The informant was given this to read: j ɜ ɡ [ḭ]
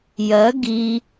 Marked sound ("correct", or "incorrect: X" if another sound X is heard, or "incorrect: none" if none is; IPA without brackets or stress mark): incorrect: i